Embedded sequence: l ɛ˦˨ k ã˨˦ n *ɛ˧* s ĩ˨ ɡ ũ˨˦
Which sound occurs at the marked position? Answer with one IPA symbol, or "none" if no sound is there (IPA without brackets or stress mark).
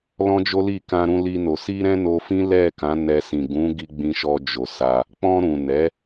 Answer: ɛ˧